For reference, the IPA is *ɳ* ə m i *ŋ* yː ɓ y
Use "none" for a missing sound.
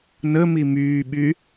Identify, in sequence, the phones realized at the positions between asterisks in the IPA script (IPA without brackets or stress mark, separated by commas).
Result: n, m